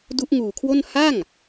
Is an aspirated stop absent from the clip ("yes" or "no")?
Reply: no